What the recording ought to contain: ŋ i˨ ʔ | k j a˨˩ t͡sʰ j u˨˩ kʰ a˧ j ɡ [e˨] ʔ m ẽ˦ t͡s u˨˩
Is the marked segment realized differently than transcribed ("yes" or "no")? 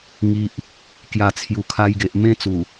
no